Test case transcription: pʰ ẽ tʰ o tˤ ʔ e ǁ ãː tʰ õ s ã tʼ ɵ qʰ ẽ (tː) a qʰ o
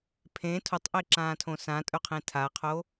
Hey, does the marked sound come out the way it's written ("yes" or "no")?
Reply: no